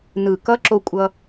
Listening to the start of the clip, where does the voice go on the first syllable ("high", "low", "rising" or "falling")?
low